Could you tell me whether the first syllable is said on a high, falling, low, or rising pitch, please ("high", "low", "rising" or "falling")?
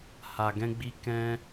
low